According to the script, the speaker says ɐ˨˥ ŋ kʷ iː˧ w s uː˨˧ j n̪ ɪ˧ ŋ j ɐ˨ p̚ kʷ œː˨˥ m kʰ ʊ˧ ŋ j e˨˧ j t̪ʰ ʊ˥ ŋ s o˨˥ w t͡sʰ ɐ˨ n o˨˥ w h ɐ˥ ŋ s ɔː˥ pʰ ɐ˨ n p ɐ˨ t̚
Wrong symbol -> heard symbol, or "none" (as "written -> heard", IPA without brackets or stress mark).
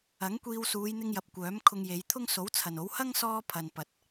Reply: none